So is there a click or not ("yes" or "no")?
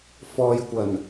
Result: no